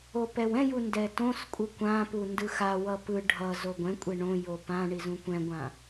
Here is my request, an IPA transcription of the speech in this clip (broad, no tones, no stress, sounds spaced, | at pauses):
o p ɛ w ɛ̃ j u n d ɛ t õ s kʷʼ ɯ kʷ ã p u n d ɯ x a w ʌ p ɯ ɖʱ ʌ z o ɡʷ ɛ̃ kʷʼ e ɳ õ j o p ã ɳ i z ũ kʷ ɛ̃ ɡʷ ã